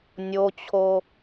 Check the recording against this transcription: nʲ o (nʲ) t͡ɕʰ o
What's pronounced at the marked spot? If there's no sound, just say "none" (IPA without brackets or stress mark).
none